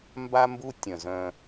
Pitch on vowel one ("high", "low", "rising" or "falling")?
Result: high